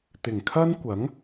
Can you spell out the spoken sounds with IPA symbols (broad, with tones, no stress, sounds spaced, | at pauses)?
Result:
t̪ ɪ˨˩ ŋ kʰ ɐ˥ n kʷ ɐ˨˥ ŋ